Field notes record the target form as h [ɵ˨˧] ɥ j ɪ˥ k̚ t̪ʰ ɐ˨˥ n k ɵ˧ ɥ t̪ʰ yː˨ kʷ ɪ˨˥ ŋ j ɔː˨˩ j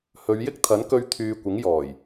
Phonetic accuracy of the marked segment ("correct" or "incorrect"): correct